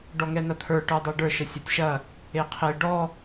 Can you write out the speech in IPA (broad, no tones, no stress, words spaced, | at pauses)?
ɖɔŋɛnɐt̪ʰə˞ ʈə˞dˤɛɖə˞ ʃəsʲɐtʲʃɐ | eqʰe ɖɔ